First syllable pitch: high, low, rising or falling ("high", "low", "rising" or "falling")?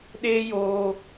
high